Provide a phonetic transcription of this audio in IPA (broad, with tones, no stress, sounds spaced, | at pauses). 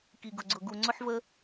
k i˨ ɡ ʊ˨ ɡ͡ǀ ʊ˨ ɡ u˨ ŋ͡ǀ ʊ˦ ħ v ə˦